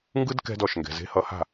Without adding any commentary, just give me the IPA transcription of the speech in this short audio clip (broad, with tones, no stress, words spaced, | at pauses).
ŋɡɯ˥d kɛ̤˥dɔ˥˩ʃŋɡɛ̤˨ ze̤˧˥hʌ˧˥ha̤˥˧